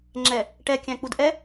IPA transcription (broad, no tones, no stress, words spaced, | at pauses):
ŋ͡ǁɛ | ʈɛkʲæ̃k͡pud ʔɛ